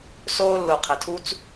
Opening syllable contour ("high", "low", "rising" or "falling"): high